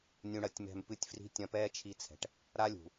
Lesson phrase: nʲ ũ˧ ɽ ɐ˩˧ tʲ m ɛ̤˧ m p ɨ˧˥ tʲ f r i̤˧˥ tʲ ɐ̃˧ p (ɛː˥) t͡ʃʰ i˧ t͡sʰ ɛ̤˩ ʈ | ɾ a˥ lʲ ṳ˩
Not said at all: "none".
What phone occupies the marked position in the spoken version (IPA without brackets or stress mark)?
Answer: ɛː˥